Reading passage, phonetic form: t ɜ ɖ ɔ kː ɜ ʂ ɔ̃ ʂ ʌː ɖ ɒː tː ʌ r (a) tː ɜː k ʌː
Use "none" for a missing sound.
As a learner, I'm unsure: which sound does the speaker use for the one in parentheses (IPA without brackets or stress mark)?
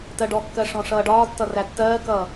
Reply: æ